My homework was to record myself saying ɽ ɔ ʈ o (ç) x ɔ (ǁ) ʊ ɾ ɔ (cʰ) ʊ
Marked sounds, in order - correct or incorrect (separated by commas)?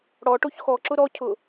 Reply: correct, correct, correct